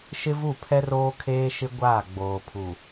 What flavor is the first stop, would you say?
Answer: aspirated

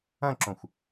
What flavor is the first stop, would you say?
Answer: click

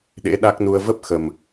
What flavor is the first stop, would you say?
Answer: implosive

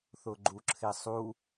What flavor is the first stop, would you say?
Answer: click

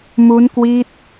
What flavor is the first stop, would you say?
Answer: plain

